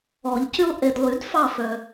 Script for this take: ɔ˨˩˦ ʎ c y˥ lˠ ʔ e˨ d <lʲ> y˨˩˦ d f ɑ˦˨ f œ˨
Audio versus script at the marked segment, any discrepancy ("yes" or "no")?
yes